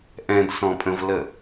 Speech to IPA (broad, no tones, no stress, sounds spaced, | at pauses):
ʔ ɛ̃ d s ɔ̃ pʼ ə̃ v l ə